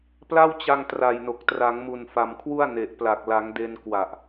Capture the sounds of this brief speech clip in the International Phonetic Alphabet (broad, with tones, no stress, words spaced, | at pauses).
pla˥˩wt͡ɕa˧ŋ tra˨˩jno˨˩k̚ tra˩˦ŋmu˨˩nfa˨˩mkʰwu˥˩a̯ ne˨˩ʔ pla˨˩k̚la˩˦ŋde˧n kwa˨˩ʔ